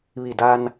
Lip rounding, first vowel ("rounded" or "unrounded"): unrounded